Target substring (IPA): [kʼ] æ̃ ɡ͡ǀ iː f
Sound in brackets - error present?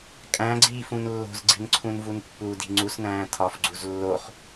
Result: no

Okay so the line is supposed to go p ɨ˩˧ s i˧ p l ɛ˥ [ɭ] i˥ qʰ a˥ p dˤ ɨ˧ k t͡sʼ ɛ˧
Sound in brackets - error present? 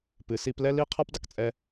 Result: yes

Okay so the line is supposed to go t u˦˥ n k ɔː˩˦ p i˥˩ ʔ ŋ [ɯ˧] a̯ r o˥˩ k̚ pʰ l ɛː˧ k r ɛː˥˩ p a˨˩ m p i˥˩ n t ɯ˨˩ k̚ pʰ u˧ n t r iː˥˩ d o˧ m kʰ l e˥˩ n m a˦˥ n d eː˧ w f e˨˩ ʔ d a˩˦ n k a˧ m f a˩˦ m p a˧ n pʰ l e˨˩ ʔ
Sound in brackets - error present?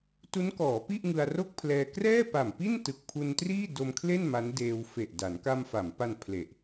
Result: no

